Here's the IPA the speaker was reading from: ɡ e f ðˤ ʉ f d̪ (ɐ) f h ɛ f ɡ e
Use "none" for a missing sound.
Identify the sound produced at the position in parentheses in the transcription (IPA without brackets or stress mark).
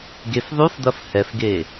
ɐ